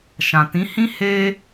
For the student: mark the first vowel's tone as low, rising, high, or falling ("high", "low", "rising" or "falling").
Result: low